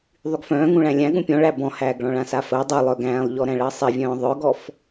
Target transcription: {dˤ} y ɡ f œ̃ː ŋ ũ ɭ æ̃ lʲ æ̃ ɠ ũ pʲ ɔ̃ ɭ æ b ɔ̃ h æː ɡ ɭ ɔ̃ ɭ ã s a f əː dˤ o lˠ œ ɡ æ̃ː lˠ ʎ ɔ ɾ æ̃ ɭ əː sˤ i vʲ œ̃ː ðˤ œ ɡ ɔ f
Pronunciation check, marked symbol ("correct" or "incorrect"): incorrect